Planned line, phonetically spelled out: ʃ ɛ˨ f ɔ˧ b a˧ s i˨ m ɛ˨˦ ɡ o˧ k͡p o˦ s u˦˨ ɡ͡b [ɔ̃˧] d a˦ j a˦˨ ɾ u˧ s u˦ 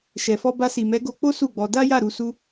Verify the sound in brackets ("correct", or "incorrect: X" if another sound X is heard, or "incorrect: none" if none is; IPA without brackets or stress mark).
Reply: incorrect: ɔ˧